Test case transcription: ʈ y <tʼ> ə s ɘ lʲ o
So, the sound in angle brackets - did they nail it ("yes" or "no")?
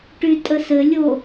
yes